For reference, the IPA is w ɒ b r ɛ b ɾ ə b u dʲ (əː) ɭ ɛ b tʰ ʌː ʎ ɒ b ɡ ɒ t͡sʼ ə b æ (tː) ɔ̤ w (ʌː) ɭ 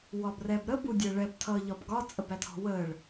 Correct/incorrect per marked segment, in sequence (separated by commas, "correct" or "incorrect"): correct, incorrect, incorrect